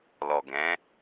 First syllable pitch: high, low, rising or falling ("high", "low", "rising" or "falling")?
low